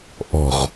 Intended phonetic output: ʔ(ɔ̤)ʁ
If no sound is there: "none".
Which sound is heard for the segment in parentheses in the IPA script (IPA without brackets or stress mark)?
ɔ̤